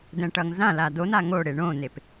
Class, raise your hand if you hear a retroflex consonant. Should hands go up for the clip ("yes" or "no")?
yes